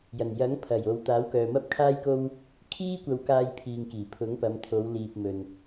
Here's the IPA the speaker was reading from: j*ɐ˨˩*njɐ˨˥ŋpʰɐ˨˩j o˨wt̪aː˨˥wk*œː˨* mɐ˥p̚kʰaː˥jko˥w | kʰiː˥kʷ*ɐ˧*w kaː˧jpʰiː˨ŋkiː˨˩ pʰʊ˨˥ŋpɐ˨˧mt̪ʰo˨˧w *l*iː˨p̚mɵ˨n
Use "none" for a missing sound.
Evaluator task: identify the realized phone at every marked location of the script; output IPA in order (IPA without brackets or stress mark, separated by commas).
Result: ɐ˨˩, œː˨, ɐ˧, l